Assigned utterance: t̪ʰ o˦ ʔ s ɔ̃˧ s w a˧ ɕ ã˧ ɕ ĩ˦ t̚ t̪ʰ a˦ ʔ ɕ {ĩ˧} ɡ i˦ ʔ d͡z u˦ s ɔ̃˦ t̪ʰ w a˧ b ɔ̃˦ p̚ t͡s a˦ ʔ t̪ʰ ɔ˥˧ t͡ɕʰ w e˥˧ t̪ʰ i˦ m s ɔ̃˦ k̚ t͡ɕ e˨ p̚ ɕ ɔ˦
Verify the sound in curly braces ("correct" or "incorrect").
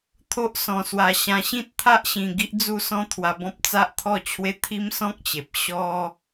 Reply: correct